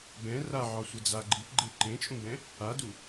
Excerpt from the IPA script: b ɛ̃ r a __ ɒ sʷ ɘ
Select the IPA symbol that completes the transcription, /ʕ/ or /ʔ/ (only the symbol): ʕ